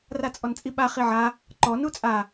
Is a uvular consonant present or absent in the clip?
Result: present